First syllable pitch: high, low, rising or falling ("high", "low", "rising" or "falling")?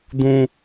high